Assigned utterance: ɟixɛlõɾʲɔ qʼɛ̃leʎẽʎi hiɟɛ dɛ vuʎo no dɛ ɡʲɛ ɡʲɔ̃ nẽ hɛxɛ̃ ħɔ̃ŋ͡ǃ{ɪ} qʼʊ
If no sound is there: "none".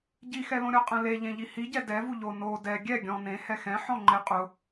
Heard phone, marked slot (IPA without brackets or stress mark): ɪ